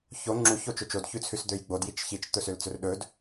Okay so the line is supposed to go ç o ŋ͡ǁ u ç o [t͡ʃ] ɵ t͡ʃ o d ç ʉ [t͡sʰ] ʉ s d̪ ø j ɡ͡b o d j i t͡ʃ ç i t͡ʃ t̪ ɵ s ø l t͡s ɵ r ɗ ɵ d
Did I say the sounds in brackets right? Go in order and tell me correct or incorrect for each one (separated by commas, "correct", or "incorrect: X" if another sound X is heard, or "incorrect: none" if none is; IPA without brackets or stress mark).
correct, correct